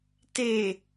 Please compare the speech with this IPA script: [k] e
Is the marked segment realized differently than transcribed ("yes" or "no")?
yes